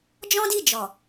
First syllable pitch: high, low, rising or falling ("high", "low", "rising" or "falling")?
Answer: high